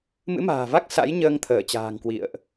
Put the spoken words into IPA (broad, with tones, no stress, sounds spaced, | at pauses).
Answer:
m ɨ̰˧˥ m a̤ː˨˩ v a˦˥ k̚ s a̰˧˥ j ɲ əː˧ ŋ t̪ʰ əː˧˩ t͡ɕ a̤ː˨˩ ŋ k w ḭ˧˨ ə̯ ʔ